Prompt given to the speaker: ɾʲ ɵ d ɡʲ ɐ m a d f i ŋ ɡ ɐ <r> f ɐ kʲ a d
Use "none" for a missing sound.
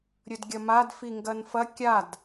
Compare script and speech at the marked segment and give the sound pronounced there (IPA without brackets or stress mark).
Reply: n